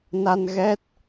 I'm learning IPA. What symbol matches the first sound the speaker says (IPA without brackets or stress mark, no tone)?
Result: n